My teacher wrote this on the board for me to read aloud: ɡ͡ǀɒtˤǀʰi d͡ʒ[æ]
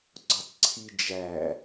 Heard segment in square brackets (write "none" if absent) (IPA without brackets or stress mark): æ